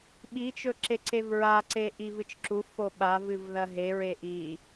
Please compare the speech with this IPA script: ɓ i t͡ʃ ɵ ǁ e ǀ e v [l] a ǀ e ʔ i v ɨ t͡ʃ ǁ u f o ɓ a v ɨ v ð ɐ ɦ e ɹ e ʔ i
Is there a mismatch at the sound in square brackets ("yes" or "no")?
yes